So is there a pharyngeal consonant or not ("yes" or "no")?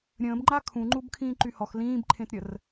no